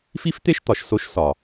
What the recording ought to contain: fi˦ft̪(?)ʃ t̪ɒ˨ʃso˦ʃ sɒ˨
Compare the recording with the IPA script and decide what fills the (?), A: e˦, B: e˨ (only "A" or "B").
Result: A